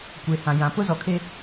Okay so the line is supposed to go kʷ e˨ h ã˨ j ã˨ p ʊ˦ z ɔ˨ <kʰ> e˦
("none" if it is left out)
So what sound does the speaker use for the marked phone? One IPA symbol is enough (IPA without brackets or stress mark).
kʰ